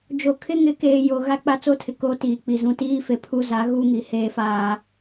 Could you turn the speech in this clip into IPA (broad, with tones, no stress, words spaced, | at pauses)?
d͡ʒo˨kʰɪ˦ŋɪ˨˦keː˨ jo˨ ɣa˦k͡pa˦t͡so˦tʰɪ˨ ko˦tiː˨ k͡pi˨zũ˨tiː˦ fe˨pʰu˦za˨˦ ɣu˦ŋi˨ heː˦faː˦